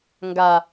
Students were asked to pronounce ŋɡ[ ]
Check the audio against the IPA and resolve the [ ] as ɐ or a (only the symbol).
a